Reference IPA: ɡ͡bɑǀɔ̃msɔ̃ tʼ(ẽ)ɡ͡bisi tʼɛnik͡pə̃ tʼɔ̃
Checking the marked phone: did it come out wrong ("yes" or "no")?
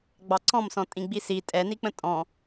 yes